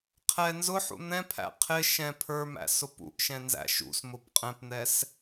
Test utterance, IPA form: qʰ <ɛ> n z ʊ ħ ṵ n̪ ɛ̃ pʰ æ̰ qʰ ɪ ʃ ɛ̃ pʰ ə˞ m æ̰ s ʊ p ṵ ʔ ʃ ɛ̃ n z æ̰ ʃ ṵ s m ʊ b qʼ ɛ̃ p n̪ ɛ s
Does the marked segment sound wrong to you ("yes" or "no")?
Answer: no